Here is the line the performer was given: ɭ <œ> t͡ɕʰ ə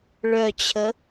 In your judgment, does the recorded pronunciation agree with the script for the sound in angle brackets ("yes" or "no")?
yes